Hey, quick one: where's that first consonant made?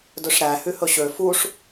tongue tip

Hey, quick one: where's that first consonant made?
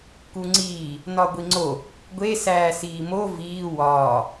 velum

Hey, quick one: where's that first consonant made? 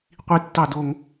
uvula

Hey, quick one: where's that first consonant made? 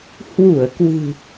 throat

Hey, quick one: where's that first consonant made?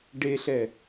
retroflex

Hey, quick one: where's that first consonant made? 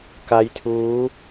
velum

